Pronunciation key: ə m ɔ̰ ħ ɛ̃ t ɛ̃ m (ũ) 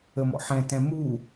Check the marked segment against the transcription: incorrect: u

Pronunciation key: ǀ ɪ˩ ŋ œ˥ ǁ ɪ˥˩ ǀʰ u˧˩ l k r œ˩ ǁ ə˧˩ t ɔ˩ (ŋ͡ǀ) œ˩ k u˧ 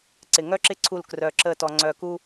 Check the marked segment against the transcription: correct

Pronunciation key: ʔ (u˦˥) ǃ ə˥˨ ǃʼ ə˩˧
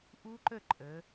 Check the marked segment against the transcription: correct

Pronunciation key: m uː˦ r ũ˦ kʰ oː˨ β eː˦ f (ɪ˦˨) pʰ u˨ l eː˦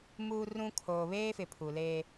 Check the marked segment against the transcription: incorrect: ɪ˨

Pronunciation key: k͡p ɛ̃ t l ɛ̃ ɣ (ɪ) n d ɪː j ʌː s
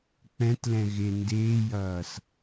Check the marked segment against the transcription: correct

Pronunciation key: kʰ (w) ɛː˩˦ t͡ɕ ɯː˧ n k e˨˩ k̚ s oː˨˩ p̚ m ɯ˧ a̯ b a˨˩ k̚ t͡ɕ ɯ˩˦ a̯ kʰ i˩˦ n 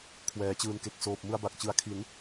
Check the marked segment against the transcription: correct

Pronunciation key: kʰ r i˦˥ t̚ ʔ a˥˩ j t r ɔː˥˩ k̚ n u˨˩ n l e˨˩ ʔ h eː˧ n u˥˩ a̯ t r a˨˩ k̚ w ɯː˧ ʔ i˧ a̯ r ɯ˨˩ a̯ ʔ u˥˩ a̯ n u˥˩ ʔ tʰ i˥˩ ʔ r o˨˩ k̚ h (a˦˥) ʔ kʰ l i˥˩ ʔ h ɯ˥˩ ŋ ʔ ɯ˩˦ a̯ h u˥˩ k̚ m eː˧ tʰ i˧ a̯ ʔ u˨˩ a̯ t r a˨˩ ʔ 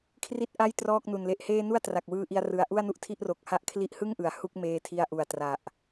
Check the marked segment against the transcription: incorrect: a˥˩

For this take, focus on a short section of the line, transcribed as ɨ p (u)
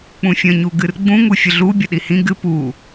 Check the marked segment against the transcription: correct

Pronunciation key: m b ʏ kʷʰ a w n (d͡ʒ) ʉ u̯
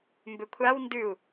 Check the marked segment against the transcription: incorrect: d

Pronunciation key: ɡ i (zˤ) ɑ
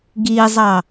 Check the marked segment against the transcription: correct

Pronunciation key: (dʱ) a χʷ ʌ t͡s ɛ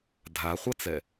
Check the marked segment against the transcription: correct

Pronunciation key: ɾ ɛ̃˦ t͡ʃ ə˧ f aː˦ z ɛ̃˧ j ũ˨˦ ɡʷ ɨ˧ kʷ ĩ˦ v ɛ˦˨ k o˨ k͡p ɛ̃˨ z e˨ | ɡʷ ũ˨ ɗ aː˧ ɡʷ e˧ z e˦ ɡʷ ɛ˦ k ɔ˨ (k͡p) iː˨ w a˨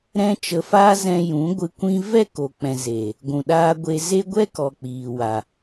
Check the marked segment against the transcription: correct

